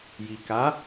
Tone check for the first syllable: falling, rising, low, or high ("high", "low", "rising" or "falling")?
low